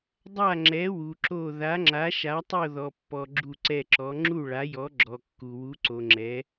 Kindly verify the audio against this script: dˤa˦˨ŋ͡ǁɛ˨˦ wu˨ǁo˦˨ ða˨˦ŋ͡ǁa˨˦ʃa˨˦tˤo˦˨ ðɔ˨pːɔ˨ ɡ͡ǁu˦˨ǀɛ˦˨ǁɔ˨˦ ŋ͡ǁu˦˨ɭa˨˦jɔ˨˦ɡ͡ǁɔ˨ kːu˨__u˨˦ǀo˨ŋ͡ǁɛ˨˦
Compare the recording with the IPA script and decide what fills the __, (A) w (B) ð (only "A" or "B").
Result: A